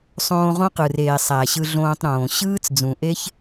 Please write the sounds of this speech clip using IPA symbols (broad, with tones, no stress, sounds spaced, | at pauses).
sˤ õː˧ ʁ õ˦ q ɯ˨ r eː˨ sˤ æ˨ ɕ ɯ˧ ɮ õː˧ tˤ ɾ õː˨ ɕ ɯː˦ t͡s d͡z ũ˨ ʔ e˦ ç